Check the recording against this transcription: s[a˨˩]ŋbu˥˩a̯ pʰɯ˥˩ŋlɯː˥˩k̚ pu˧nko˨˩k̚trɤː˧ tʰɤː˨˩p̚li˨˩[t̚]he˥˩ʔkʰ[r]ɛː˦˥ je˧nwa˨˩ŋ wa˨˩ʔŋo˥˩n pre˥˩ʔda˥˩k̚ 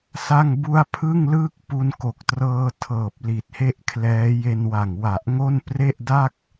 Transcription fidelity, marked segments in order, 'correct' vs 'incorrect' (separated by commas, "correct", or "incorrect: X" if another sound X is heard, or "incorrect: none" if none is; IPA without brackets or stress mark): incorrect: a˥˩, correct, incorrect: l